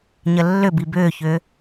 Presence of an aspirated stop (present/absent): absent